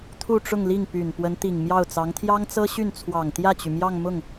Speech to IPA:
t̪ʰ u˥˧ ʈ͡ʂ ʊ˥˧ ŋ l i˥˩ ŋ p y˨˩ n p w ə˧˥ n t̪ i˨˩ ŋ m j ɑ˥˩ ʊ̯ t͡s ɑ˧˥ ŋ t̪ʰ j ɑ˥ ŋ t͡s ɤ˥ ɕ y˥˩ n t͡sʰ w ɑ˨˩ ŋ t̪ j ä˥˩ t͡ɕ y˩ m j ɑ˥˧ ŋ m ʊ˥˩ ŋ

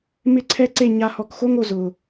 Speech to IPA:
m ɪ˦ ǀʰ ɛ˦ ǀ e˦˨ ɲ a˧ h ɔ˨ k x o˦ ŋ o˨ z ʊ˨

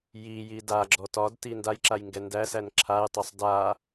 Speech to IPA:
j i j i d a ɡ͡ǁ ɔ t ɒ d t i n d a j ǁ a j ŋ ɡ ɛ n d æ s æ n ǁʰ a j tˤ o sˤ d a

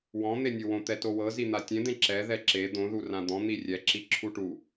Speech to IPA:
w ɔ̃ n̪ e nʲ ɯ w õ t̪ ɛ t o w ɤ z i n̪ a tʲ ẽ d̪ ẽ ǁ ɛ ð ɛ ǁ e d̪ õ ð u r ã d̪ ɔ̃ n̪ i rʲ ɛ ǁ i ǁʰ u ʈ u

